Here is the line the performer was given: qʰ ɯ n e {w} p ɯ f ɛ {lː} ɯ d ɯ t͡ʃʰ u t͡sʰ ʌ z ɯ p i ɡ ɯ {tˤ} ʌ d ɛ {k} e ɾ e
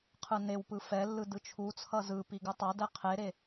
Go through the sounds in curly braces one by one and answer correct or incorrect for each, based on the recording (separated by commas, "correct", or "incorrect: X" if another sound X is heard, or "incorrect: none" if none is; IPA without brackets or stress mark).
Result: correct, correct, correct, incorrect: qʰ